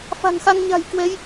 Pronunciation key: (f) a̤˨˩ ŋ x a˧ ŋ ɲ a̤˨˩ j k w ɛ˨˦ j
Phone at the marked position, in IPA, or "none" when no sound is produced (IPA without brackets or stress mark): f